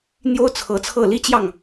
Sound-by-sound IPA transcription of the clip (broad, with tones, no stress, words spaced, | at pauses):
n̪jo˦ʊ̯t͡sʰɤ˨˦t͡sʰɤ˥˨ li˦t͡ɕjɑ˥˨ŋ